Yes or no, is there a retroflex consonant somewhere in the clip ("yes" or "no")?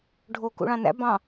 yes